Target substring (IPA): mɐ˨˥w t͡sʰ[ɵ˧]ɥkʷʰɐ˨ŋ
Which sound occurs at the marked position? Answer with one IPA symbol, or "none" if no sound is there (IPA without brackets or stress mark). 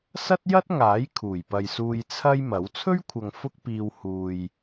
ɵ˥